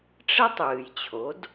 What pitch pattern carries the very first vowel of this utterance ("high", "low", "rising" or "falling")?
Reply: high